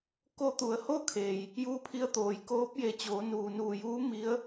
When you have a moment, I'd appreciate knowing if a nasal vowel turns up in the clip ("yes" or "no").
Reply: no